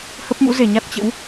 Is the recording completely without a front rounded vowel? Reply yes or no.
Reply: yes